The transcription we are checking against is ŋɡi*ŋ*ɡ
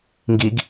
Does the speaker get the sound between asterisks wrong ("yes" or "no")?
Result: yes